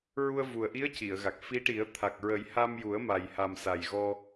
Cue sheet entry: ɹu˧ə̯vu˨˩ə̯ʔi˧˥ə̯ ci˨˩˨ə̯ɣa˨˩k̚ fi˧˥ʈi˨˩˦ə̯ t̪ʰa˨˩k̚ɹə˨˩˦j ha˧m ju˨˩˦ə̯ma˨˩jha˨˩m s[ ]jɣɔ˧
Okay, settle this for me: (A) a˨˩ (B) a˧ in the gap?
A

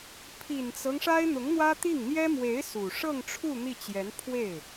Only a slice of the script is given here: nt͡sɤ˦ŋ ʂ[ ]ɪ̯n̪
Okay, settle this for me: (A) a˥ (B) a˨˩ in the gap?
A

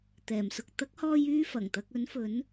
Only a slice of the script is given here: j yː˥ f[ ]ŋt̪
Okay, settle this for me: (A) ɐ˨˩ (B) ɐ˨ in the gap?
A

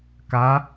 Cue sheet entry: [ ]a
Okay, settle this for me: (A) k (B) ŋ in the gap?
A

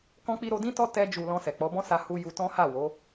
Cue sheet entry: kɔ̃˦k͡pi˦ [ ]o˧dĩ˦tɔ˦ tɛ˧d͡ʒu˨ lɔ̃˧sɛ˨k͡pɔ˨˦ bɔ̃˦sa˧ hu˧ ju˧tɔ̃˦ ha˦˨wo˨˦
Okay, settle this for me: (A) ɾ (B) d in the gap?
A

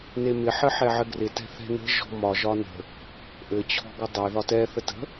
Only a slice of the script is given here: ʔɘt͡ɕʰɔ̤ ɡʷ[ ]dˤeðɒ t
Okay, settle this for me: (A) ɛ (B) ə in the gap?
B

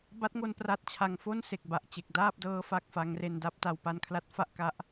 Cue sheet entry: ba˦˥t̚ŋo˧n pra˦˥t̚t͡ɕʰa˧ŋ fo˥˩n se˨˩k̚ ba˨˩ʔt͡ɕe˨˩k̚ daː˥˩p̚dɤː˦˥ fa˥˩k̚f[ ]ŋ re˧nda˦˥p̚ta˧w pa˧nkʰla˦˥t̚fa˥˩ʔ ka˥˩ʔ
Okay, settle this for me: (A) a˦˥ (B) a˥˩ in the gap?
A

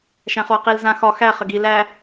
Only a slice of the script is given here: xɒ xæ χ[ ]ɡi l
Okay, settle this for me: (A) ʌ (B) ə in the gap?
B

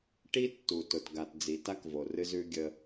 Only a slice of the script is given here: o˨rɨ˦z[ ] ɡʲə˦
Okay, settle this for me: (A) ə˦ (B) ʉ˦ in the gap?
B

